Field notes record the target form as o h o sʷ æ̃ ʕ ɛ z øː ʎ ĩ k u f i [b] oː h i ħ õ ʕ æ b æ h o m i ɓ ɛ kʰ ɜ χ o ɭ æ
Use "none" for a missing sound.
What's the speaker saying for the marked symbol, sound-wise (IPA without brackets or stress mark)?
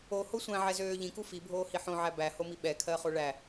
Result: bʱ